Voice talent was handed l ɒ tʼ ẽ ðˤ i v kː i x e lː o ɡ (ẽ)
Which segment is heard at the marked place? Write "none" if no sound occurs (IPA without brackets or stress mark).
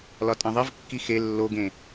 ẽ